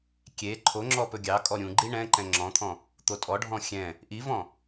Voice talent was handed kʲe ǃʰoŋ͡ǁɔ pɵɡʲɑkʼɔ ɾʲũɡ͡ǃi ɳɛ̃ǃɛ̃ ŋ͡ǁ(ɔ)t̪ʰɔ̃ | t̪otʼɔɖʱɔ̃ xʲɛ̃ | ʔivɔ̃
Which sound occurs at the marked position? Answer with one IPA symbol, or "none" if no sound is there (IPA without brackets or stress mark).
ɔ̃